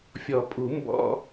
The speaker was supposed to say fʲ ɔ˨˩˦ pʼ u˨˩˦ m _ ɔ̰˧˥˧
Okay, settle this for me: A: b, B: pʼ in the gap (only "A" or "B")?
A